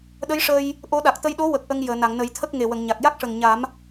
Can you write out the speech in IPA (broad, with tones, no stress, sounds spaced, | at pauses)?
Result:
ɗ ə˧˥ j ʂ əː˧ j | ʔ o˧˥ ɗ a˨˩ k̚ t̪ ə˧ j ɗ o˧˥ w ə˨˩ k̚ ʔ ə˧ ŋ j əː˨˩˨ n a˨˩˨ ŋ n ə˨˩˦ j t̪ʰ ə˦˥ k̚ ŋ e˨˩ w ə˨˩˨ ŋ ɲ a˨˩ k̚ j a˦˥ k̚ ʂ ə˨˩ ŋ ɲ a˨˩˦ m